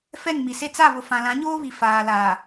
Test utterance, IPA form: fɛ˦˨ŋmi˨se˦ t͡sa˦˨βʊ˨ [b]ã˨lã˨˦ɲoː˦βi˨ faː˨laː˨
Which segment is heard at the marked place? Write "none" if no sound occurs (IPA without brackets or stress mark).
f